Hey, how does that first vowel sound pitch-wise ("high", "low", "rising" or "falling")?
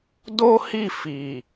high